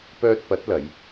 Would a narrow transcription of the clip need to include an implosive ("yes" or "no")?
no